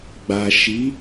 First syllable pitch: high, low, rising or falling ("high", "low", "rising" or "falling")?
low